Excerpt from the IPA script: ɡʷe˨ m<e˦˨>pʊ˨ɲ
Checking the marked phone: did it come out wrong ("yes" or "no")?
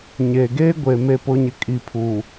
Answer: yes